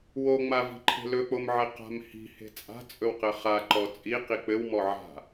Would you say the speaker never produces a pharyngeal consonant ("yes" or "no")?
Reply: no